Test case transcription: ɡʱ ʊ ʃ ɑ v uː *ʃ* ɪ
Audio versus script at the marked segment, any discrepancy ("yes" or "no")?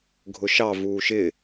no